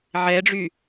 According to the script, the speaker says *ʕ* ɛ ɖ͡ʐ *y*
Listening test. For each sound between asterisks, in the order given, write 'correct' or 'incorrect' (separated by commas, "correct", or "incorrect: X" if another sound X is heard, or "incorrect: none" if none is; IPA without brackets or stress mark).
correct, correct